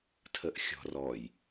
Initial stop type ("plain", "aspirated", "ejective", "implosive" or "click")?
aspirated